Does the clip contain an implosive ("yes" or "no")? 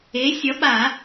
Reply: yes